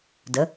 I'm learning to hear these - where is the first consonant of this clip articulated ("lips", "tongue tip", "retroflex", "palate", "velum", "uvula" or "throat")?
tongue tip